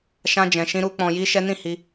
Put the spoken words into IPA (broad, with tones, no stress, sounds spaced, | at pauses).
ʃ ã˦ d͡ʒ ɛ̃˧ ʃ ĩ˦ ɾ u˦ k͡p ɔ̃˧ j i˦ ʃ ɛ˦ n ĩ˦˨ h i˧